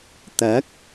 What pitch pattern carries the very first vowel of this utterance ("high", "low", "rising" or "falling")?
rising